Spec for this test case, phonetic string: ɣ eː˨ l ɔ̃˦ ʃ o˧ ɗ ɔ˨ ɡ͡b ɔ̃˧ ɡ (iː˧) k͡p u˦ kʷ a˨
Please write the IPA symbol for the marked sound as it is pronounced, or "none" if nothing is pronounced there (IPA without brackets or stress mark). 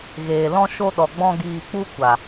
iː˧